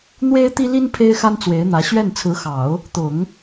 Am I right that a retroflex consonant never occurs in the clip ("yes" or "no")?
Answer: yes